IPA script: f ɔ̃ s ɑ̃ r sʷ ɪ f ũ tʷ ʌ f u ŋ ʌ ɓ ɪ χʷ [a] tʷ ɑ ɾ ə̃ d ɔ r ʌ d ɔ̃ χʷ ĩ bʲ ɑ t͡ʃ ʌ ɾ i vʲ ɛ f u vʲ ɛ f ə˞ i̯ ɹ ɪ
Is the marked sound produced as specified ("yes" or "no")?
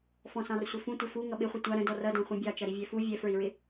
no